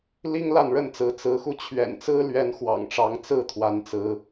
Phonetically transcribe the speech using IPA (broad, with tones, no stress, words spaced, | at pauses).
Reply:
li˦ŋla˥˨nɻə˥˨nt͡sɹ̩˨˦ t͡sɹ̩˨˦xu˧ t͡ɕʰɥɛ̰˨˩nt͡sɹ̩˦lɥɛ˨˦n xwɑ̰˨˩ŋʈ͡ʂɑ˨˦ŋ t͡sɹ̩˥˨t̪ʰwa˨˦nt͡sɹ̩˨˦